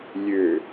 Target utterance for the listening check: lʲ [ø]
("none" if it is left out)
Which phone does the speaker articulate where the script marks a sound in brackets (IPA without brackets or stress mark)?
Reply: ø